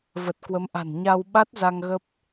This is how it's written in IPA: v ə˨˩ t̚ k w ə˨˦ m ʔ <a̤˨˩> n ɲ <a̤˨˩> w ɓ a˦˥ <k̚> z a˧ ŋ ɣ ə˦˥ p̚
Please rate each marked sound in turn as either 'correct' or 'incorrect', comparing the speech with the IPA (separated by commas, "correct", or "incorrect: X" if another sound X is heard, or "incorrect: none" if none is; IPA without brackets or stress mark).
correct, incorrect: a˧, incorrect: t̚